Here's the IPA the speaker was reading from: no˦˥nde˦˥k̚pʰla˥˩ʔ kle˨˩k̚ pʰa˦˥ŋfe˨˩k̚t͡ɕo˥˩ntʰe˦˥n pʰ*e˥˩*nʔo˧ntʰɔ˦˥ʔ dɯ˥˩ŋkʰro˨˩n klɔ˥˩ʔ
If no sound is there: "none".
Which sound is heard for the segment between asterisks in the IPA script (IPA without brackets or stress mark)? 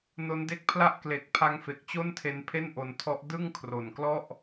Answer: e˥˩